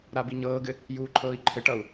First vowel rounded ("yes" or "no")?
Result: no